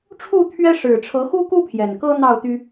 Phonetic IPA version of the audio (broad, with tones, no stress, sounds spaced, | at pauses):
ʈ͡ʂʰ u˥˨ t̪ʰ ɥ ɛ˦ ʂ ɻ̩˨˩ ʈ͡ʂʰ ɤ˨˦ x u˦ k u˦ pʰ j ɛ˨˩ n k ɤ˦ n̪ ɑ˥˨ ʊ̯ t̪ y˦